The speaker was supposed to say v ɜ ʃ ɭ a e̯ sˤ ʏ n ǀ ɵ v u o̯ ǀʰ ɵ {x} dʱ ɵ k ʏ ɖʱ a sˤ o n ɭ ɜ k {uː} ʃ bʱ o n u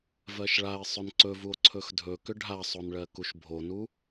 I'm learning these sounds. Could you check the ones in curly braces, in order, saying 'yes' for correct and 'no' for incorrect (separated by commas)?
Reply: yes, no